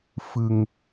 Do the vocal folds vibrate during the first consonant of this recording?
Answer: no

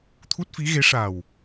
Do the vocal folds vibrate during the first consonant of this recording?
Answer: no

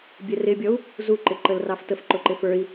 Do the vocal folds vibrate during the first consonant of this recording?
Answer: yes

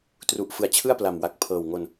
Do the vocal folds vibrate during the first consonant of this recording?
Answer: no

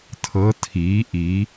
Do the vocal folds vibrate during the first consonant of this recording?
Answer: no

